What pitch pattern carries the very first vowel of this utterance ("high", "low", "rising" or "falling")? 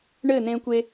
falling